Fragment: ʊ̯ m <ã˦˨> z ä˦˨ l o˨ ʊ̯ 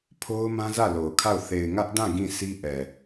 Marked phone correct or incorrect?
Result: incorrect